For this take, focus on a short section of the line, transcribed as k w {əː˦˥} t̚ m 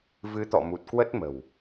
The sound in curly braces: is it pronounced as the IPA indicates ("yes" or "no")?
no